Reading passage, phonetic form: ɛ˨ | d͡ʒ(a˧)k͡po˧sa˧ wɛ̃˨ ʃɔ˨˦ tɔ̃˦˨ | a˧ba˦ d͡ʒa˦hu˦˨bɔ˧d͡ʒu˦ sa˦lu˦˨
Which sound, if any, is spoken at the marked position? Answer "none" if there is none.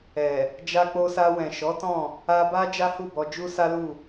a˧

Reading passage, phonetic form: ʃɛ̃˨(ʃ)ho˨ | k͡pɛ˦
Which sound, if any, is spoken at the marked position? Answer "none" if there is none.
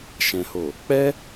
none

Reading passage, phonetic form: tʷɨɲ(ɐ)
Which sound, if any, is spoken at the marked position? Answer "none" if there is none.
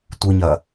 ɐ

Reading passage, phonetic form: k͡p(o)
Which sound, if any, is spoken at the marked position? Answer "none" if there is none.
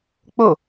o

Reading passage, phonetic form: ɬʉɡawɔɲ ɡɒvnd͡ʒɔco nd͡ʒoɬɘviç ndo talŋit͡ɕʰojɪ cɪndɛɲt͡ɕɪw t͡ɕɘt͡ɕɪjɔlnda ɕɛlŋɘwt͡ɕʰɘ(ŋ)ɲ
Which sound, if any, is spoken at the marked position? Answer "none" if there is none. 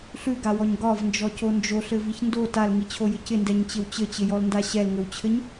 none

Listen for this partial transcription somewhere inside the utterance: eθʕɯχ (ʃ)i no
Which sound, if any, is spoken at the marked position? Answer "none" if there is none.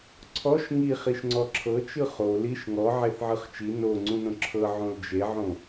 t͡ʃ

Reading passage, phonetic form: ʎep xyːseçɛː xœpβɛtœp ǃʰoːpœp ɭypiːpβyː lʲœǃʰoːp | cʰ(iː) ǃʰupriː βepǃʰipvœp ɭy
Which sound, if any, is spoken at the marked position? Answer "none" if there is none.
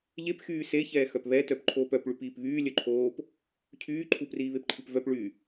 yː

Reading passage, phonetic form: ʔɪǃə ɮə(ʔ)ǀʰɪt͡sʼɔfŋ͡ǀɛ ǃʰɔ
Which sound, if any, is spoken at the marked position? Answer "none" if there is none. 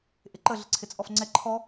none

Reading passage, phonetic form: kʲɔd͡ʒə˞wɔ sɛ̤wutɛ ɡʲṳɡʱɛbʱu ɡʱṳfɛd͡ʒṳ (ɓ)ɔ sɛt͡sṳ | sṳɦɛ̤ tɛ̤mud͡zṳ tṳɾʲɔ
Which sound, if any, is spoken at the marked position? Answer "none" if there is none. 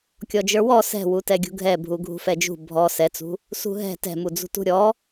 bʱ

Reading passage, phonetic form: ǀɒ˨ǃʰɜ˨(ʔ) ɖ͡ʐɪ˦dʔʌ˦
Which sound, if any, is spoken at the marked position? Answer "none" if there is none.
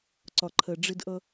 none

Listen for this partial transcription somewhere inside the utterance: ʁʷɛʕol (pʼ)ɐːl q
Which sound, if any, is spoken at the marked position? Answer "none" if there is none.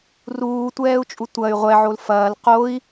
f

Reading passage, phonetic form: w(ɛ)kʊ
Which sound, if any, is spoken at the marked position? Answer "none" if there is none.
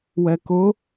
ɛ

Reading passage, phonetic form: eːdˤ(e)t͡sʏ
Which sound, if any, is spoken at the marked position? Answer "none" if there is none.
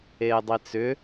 i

